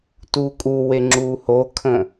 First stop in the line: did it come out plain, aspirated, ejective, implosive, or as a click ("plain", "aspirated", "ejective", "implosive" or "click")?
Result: plain